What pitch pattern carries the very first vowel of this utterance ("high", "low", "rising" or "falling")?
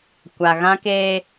low